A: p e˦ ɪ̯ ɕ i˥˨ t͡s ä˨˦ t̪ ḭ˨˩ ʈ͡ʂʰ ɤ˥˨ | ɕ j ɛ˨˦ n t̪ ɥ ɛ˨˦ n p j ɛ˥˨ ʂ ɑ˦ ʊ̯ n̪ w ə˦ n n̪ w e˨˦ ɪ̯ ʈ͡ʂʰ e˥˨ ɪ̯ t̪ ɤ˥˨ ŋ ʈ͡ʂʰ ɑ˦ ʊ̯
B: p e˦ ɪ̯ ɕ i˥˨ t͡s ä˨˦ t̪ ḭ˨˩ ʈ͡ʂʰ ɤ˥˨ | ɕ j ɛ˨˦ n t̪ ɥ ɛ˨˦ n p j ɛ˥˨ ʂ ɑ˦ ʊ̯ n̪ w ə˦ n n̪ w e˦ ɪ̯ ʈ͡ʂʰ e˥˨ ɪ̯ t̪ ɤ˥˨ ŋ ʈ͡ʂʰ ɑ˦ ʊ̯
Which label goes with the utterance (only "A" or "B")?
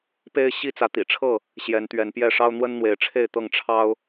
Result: A